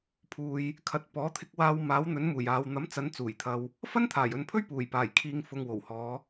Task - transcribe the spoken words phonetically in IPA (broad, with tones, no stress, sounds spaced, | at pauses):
pʰ uː˧ j | kʰ ɐ˨˥ t̚ p ɔː˨˥ t̪ʰ ɪ˧ k̚ w aː˧ w m aː˨˥ w n̪ ɵ˨˥ n m uː˨˩ j aː˨ w n̪ ɐ˨˥ m t͡s ɐ˨˧ n t͡s uː˨˩ j t̪ʰ ɐ˧ w | f ɐ˥ n t̪ʰ aː˨˩ j ɵ˨ n pʰ ɵ˥ ɥ p uː˨˩ j p aː˨˩ j kʰ iː˨ ŋ f ʊ˨ ŋ w o˨˩ w h ɔː˨˧